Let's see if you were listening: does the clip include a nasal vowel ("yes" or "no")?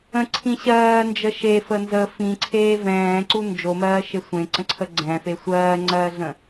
yes